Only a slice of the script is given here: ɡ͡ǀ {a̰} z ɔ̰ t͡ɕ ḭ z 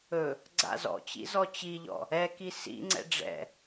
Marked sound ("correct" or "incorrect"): correct